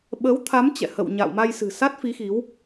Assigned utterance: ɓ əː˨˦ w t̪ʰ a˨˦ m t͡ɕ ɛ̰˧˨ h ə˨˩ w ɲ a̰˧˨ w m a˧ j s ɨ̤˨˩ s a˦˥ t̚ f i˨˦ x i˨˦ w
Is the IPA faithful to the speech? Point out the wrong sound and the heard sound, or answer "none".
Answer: ə˨˩ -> ə̰˧˨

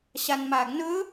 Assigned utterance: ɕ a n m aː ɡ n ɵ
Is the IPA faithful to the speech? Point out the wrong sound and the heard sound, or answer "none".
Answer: none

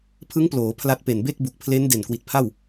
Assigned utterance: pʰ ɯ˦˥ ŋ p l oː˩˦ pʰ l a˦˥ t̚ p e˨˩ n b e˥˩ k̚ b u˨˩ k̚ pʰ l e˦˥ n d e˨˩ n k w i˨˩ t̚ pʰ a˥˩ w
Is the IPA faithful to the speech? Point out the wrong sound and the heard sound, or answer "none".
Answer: none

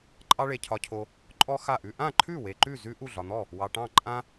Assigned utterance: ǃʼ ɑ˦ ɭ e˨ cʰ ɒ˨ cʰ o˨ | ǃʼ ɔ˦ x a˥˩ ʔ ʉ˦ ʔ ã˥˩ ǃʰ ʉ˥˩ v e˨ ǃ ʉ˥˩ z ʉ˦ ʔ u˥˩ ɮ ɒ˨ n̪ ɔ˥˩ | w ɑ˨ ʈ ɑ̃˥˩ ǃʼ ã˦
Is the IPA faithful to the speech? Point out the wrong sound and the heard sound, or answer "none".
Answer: v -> w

